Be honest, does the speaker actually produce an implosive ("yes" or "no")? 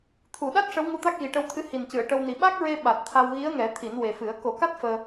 yes